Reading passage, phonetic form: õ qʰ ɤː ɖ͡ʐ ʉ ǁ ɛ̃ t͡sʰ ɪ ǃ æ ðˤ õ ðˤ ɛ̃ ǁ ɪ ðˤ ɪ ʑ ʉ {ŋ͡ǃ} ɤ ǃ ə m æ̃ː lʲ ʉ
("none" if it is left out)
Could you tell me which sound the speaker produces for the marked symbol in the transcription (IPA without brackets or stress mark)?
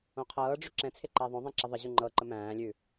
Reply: ŋ͡ǃ